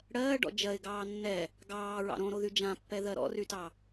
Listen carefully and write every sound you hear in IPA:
ɽɜːɖɔ̰ d͡ʒɜɪ̯ɡɑː nːɛ | ɡɑːɹɑ̰ ɾõɾoðy d͡ʒãpːɛðɜ ɾɔ̰rytɑ

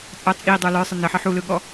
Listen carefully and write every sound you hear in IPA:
t͡sʼɑ t͡sʼidˤə˞ lə˞sˤə nəħə ħulɯɠɔ

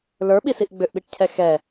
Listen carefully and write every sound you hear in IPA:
lə˞ɓisiʔ ɡ͡bʏʔɓiʈcʰɛ xɛ

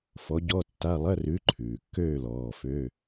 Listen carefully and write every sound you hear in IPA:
fɔ˨˥ ɟɔ˧˥˧tːa˧˥˧ lˠɐ˧˥˧rʉ˨˥ǃʰʉː˩kːøː˦˨ lɔː˩˧˩fø˧˥˧

